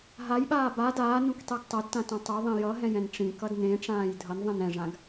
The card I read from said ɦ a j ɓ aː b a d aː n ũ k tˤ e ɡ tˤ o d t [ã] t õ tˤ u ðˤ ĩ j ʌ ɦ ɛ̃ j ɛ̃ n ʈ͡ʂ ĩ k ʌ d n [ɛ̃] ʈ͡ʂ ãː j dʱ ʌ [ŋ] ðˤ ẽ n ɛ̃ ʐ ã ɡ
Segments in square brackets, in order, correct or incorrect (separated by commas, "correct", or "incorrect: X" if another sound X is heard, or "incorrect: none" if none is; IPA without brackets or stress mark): correct, incorrect: ẽ, incorrect: n